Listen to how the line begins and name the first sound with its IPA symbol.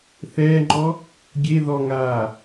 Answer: θ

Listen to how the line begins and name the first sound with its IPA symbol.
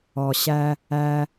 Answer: ɔ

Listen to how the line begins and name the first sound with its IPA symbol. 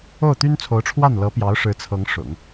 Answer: o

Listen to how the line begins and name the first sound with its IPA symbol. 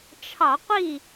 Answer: t͡ʃʰ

